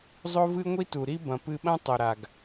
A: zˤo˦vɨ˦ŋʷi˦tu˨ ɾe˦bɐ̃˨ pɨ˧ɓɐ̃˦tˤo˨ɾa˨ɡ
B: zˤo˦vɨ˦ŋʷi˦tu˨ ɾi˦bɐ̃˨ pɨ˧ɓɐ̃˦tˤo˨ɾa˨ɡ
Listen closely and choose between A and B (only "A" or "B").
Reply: B